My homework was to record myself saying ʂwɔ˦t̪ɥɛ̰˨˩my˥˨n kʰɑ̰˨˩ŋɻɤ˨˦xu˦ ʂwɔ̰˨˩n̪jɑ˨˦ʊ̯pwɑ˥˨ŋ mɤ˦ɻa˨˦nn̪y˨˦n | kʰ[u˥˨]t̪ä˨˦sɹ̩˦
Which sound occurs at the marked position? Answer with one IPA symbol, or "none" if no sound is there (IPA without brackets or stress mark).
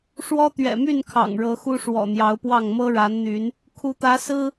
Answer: u˨˦